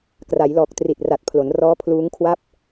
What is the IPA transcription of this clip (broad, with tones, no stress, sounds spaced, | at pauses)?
k r a˩˦ j l ɔː˨˩ k̚ t r i˨˩ t̚ r a˨˩ t̚ pʰ l o˩˦ n r ɔː˦˥ pʰ l uː˦˥ ŋ kʰ w a˥˩ p̚